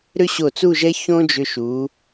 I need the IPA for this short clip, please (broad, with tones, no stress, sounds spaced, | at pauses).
ɾ ʏ˥ ɕ o˧˩ t͡s u˥˧ ʒ ɛ˥ ç õ˥ d͡ʒ ʏ˧ ʃ u˩˧